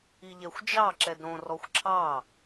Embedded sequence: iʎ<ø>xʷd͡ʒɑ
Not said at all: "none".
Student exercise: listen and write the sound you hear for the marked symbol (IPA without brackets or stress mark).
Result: ɛ